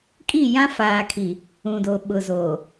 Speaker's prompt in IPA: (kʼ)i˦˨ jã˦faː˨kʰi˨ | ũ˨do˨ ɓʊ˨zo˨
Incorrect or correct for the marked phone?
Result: correct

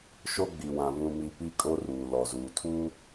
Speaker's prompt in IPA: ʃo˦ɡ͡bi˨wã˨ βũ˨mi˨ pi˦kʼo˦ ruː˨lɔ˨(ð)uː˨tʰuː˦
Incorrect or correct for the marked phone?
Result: incorrect: z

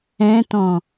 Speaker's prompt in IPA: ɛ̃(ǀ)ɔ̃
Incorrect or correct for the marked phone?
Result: incorrect: t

